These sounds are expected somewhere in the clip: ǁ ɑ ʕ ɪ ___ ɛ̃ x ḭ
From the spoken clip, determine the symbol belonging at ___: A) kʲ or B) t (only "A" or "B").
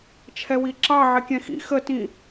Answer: A